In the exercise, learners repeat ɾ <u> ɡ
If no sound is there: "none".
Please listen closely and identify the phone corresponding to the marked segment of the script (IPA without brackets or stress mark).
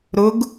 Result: ʊ